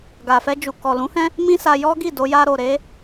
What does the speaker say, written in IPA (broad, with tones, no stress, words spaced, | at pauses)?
ɡa˨fɛ˧d͡ʒu˨ kɔ˨lũ˨˦hɛ̃˦ | mĩ˦sa˧ jɔ˦ɡi˦˨do˧ ja˧ɾo˨ ɾe˨˦